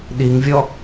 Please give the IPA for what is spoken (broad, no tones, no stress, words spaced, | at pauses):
ɗiŋvʲɔ